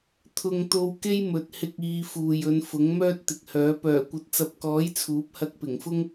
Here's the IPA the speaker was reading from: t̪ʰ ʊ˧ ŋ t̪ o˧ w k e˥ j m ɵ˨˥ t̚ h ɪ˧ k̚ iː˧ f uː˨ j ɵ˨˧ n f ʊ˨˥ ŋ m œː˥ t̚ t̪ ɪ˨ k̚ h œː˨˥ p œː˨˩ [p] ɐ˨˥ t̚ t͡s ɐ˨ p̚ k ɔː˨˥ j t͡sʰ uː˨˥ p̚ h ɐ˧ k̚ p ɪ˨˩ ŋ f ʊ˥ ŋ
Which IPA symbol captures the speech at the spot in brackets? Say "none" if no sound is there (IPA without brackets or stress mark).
kʷ